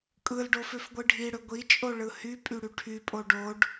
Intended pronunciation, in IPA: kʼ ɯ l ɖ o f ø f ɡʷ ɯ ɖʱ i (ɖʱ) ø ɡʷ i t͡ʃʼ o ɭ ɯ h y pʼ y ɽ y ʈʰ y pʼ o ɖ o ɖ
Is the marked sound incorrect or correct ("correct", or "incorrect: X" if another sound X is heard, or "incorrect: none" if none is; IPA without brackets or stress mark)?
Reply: incorrect: ɽ